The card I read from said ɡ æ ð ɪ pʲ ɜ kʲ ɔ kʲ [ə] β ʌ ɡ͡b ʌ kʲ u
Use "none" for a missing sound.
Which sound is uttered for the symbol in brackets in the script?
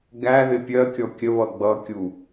ə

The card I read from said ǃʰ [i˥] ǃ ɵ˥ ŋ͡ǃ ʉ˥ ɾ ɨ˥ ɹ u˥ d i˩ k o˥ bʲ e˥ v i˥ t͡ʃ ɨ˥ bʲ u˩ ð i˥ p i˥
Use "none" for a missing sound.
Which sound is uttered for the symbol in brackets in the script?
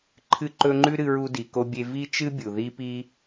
ɨ˥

